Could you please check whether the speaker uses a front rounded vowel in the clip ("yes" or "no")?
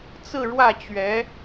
no